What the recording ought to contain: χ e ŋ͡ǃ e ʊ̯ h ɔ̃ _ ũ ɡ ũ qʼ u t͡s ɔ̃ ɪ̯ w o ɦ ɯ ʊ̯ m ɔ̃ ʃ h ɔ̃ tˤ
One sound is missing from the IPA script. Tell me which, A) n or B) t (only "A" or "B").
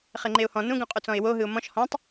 A